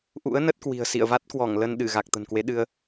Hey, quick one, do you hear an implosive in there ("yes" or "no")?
yes